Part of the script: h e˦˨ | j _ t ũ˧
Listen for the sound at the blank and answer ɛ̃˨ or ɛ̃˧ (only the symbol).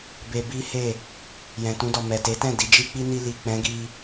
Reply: ɛ̃˨